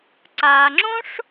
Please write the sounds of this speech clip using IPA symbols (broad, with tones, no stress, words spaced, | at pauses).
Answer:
ǀa˩ŋ͡ǁõ˥ʂ